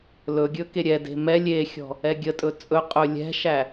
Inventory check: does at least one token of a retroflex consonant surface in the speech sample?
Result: no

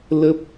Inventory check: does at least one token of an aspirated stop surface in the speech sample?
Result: no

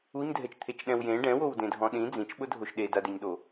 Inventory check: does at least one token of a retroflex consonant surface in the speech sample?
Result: yes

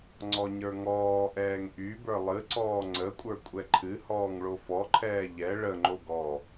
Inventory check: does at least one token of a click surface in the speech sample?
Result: yes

